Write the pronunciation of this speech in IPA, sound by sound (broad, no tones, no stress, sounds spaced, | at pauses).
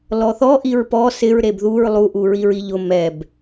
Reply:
l ɔ θ ɔ ʔ i ɹ p ɔ s ɪ ɹ ɾ e b ð u ɹ lˠ u ʔ u ɹ i ɹ i ʎ ʊ m ɛ b